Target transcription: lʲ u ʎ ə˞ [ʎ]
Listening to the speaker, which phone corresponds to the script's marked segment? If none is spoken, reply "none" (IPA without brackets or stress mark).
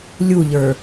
none